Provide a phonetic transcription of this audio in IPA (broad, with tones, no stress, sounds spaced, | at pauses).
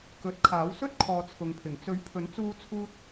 k ɵ˨˥ t̚ kʰ aː˨˥ w s ɵ˥ t̚ kʰ ɔː˧ t͡sʰ ʊ˨˧ ŋ pʰ ɪ˨˩ ŋ t͡s ɵ˨˥ ɥ pʰ ɵ˨˥ n t͡s uː˧ t͡sʰ uː˧ t̚